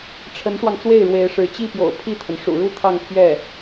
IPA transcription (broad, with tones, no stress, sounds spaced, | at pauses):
ʈ͡ʂʰ ə˧˥ n ʂ w ɑ˧ ŋ t͡s w e˥˩ ɪ̯ ɻ w e˧˥ ɪ̯ ʂ ɻ̩˧˥ t͡ɕ i˥˩ p j o̰˨˩ ʊ̯ pʰ i˥˩ t̪ʰ ə˩ n ʂ ṵ˨˩ ɻ u˥ t̪ʰ ɑ˥˧ ŋ pʰ ɥ ɛ˥˩